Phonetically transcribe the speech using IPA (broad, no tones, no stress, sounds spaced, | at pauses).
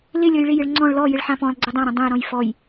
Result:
l ɪ lʲ ɔ j ɭ ɪ j ɪ ɭ ŋ͡ǀ ɔ̃ ɭ l ɔ j ɪ ɭ ħ ã p ɔ̃ lˠ ɡ͡ǀ ɪ dˤ ã ɾ ɛ̃ dˤ ɛ̃ j ɾ ɔ̃ j f ɔ j